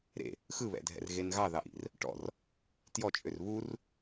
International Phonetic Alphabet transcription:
ɾ ḛ | x ɯ β ɛ̰ dʱ ɛ̰ r ɣ e n ɣ ɑ ð ɑ ʔ ḭ r | ʈ ɔ̰ r | t j ɔ t͡ʃʼ ø r β u r

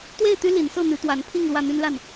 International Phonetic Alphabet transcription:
t̪ w e˥˨ ɪ̯ t̪ y˦ l i˨˦ n s ɤ˥˨ n̪ y˨˦ t̪ w a˨˦ n pʰ i˥˨ ŋ l w ä˥˨ n̪ y˦ n l a˥˨ n

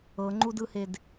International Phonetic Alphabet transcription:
ɤ ŋ͡ǃ u d ɯ h e d

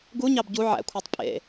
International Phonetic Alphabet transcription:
ɡ u ɲ ɑ b ɟ u ʕ æ̰ kʷʰ ɑ tˤ pʼ ḛ

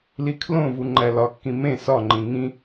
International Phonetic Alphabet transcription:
l i kʰ l õ v u ŋ͡ǃ æ l ɒ kː ĩ m ẽ s ɒ ŋ͡ǃ ĩ ŋ ĩ

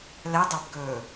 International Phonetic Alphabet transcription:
l ɛ dˤ æ b ɡ ɵː

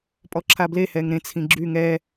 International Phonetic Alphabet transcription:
pʼ ɔ ǁʰ a b l e h ɛ ŋ ɾ ẽ t͡sʰ ĩ ɡ͡ǁ y ŋ ɛ

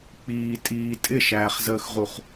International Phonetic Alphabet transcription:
k͡p iː tʼ iː tʼ ɪ ʃ æː χ z əː x ʁ u χ

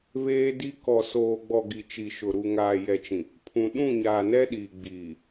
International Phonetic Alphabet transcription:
β eː˦ d i˦ k ɔ˨ s oː˨ ɡ͡b ɔ˨ ɡ i˨ t͡ʃ i˨ ʃ ʊ˨ ɾ u˨ ŋ aː˨ j ɛ˨ t͡ʃ ĩ˨ | pʰ ũ˨ ɗ ũ˦˨ ɲ aː˨ n ɛ˦ ɗ iː˨ ɡ͡b iː˨

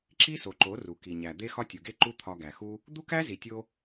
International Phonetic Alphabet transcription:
ǁ i˦ s o˨ ǃ o˨˦ r u˨ k i˨ ɲ æ˨ d̪ e˦ x ɒ˦ tʲ u˨ ɡ e˦ ǃ u˦ t̪ʰ ɒ˧ ɡ æ˨ x u˦ | d̪ u˦ k æ˦ z i˨ tʲ o˧

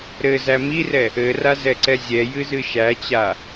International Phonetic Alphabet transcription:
ɾ ɘ z æ m i r ɛ | ɘ r a z ɛ ǀ ɛ zʲ ɛ j ɨ z ɨ ʃ æ t͡ɕ a

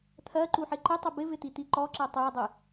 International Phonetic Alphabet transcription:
t̪ʰ ɜ ǃ u ħ ɪ ǃ ɪ tˤ ɪ b ɪ v ɪ t̪ i t̪ i ǃ ɔ ǁ ɜ tˤ ɜ dˤ ɪ

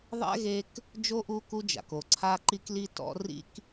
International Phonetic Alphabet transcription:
ðˤ ɛ̰˥ ɣ e˦ k | d͡ʒ o˥ ʔ u˦ k u˦ d͡ʒ a̰˩ k o˩ ǀʰ a˦ ǃ i˦ k l i˦ t ɔ̰˦ r ḭ˦ k

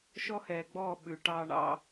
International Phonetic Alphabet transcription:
ʃ ɔ˦ h ɛː˨ ɡ͡b ɔː˦˨ ɓ ʉ˨ ʈ ɑː˦ ɳ ɑ̰˦

